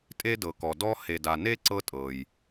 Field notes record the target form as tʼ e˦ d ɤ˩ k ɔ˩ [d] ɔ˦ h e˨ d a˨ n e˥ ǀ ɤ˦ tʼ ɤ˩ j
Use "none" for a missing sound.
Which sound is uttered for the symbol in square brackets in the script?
d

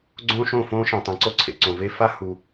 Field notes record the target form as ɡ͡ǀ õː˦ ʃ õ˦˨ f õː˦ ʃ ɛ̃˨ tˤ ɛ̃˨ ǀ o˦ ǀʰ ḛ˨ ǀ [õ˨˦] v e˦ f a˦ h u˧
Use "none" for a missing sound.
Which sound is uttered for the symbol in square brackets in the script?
õ˨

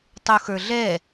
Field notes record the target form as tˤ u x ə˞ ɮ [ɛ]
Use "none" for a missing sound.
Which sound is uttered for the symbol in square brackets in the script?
ɛ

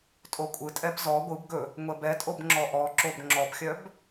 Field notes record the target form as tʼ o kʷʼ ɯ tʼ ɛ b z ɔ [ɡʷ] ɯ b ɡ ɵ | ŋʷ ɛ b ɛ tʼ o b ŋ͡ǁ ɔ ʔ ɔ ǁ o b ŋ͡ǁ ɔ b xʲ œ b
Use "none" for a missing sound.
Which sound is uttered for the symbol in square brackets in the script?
ɡʷ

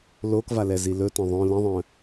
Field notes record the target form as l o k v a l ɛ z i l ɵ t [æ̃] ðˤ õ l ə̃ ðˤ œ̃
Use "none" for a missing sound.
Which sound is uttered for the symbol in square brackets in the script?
œ̃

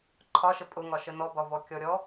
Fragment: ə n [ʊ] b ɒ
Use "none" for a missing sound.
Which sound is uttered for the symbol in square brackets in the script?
ɔ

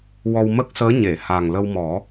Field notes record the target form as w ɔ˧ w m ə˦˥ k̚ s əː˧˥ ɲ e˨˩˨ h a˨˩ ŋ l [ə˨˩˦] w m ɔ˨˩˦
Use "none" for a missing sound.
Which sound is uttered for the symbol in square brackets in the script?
ə˧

